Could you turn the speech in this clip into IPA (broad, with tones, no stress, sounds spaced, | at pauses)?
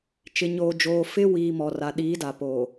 t͡ʃ ɪ˨ ɲ oː˨ d͡ʒ oː˨ f ɪ˦ w iː˨ m ɔ˨ r a˨ ɗ iː˨˦ d a˨ p oː˨